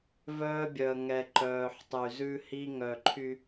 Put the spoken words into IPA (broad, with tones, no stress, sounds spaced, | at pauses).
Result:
v œː˦ bʲ œ˨ ə̯ ŋ ɛ˨ ǃ œː˨ ħ tˤ y˨ z ʉ˦ h i˦ ŋ œ˨ ǃʰ y˦